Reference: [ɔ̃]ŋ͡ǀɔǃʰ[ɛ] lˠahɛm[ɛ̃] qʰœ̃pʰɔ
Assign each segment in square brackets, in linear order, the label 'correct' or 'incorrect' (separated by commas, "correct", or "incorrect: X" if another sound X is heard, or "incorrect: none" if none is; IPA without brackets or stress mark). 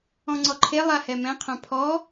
correct, incorrect: e, correct